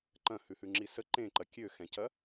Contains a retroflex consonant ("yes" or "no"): no